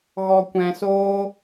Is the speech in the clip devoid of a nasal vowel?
no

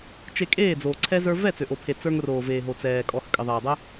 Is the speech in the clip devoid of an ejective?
no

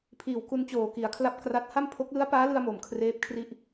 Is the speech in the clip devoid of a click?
yes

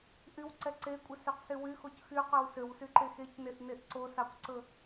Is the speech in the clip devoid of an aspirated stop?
yes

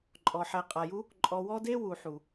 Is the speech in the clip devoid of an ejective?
no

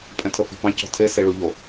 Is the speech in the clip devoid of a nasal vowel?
no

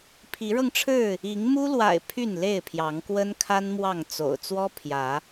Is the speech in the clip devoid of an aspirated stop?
no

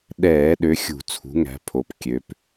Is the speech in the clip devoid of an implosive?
no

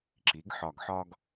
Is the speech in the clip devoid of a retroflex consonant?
yes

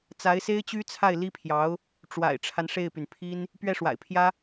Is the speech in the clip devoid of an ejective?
yes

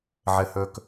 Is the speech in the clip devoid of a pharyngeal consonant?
no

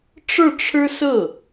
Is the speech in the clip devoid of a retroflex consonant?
no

